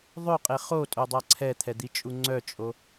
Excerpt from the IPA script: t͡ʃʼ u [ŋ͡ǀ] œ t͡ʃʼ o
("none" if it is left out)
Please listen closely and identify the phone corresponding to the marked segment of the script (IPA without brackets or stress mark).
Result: ŋ͡ǀ